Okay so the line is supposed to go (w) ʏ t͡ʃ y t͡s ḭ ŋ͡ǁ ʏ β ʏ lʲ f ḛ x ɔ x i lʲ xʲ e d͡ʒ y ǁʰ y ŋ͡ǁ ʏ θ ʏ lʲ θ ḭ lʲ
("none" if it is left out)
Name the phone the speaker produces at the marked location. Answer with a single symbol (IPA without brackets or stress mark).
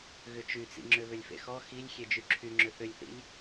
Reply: ɣ